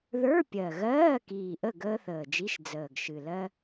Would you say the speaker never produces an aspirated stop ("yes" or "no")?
yes